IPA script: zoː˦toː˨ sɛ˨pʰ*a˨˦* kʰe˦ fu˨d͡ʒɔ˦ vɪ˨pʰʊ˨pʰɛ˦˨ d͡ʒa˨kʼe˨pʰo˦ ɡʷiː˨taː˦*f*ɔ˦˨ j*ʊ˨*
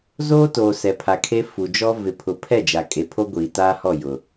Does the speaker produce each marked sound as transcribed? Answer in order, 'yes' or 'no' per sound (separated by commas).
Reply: no, no, yes